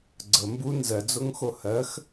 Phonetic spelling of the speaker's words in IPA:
ɡ͡ǀ ə m b u n z ɜ d͡z o ŋ x o h ɜ x

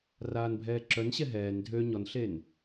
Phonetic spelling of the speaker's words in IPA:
r aː n bʱ ɛː ǁ œ n ɕ ɛ ɦ ɛː n dʱ ø ɲ ɔ n ɬ e n

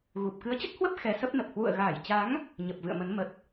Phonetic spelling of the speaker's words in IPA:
ɣ u˨˩ p̚ k ɨ˨˦ ə̯ t͡ɕ ə˦˥ t̚ h w ə˦˥ p̚ x ɛ˨˦ s ə˦˥ p̚ n ə˨˩ p̚ h w ṵ˧˨ ə̯ ɣ aː˧˩ j t͡ɕ a˨˦ ŋ | ɲ ə˨˩ p̚ v ɨ̰˧˨ ə̯ m ə˨˦ n m ə˨˩ t̚

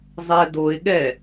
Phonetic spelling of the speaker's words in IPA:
zˤ ɛ d o ɪ̯ ɠ ɛ

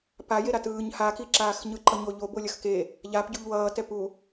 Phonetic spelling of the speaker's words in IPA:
p a j e ɾ a t ɯː ɲ h a k i ǁ aː x ɲ ɯ ǃ ʌ ɲ o ʎ o b o lʲ ʌ x k e | ʎ a p ɟ u ʎ w ʌː t ɛ p u

